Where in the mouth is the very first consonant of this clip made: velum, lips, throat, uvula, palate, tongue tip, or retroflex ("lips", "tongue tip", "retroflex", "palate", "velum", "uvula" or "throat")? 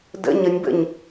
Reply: tongue tip